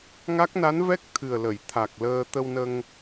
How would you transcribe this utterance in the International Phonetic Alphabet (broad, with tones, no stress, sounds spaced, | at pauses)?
ŋ a˦˥ k̚ n a˧˥ n v ɛ˦˥ k̚ t̪ʰ ɨ˨˩ ə̯ l ə˨˩˨ j t̪ʰ a˨˩ k̚ l əː˧ t̪ ə˧ w n ə˧ ŋ